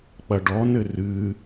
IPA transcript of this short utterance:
k͡p ɐ ɖ ɔ n ɘ r ɨ

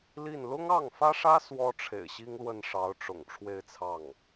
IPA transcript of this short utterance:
l i˥˩ n l ʊ˥ ŋ ɑ˥˩ ŋ f ä˥ ʂ ä˥ s w ɔ˥ ʈ͡ʂʰ ḛ˨˩ ɪ̯ ɕ i˥ ŋ l w ə˥˩ n ʂ ɑ˧˥ ʊ̯ ʈ͡ʂ ʊ̰˨˩ ŋ ʈ͡ʂʰ w e˥˧ ɪ̯ t͡sʰ ɑ˥˩ ŋ

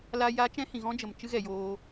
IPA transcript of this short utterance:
l a˧ j a˦ t͡ʃ ɛ̃˦ h ĩ˨ ɣ ɔ̃˦ d͡ʒ ə˨ m t͡ʃ ɨ˧ ɣ ɛ˨ j oː˧

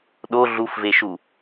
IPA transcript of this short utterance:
ɗ o ɮ u f v e ʃ u

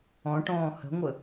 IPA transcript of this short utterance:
ɔ̃ ʈ ɔ̃ː h ə̤ ŋʷ ə

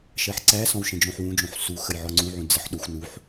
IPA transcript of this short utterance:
ʃ ɜ ħ ǀ æ s ɔ̃ w ʃ ə̃ d͡ʒ õ ħ w ũ d͡ʒ õ ħ s u x ə j ʕ ɔ ŋ͡ǀ ũ ʕ ũ d͡z ə ħ ɗ o xʷ n u ħ

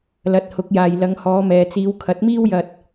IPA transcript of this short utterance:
l ɐ˨˥ t̚ h ʊ˨˥ k̚ j aː˨ j l ɐ˨˧ ŋ h ɔː˨˧ m ɛː˨ t͡s iː˨˧ w kʰ ɐ˨˥ t̚ m iː˥ w j ɐ˧ t̚

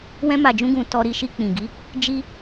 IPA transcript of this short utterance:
w ɛ̃˧ m a˨ d͡ʒ ũ˧ ɡ ũ˨ t ɔ˧ ɾ i˧ ʃ i˧ k͡p ĩ˨ ɡ i˨˦ | d͡ʒ i˧

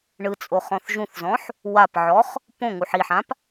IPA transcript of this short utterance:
ɳ ɯ t͡sʼ o χ ɔ̃ θ ʒ ũ θ z ɔ̃ ħ | w a p ʕ ɔ χ | p õ ŋ u ħ i ħ ã p

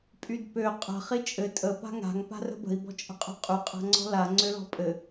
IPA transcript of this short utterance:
pʼ y d p ø qʼ ə̤ χ i t͡ʃʼ ɘ tʼ ə p a̤ ŋ a̤ ŋ p a̤ r ə̤ b ə̤ i̯ b ɔ̤ t͡ʃʼ ə̤ qʼ ɔ̤ qʼ y qʼ a̤ ŋ͡ǀ ɔ̤ l a ŋ͡ǀ ø l ɔ̤ pʼ ɘ

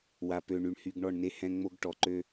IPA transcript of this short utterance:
w a˨ p ø˨ ɳ y˨ ɳ h y˨ ɡ ɳ ɔ˦˨ ɳ n e˦ h ɛ̃˦ ŋ͡m o˦ ɡ ʈ ɔ˨ ǃ ø˦

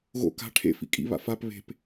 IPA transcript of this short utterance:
ɣ o̰ k a̤ ʈʰ ḛ f ḭ kʼ ḭ β a̰ f a p β e̤ p

